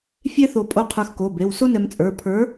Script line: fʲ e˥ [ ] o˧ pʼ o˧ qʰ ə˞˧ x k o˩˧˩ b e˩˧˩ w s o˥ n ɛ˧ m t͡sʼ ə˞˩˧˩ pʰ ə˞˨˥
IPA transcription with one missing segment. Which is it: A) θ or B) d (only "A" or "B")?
A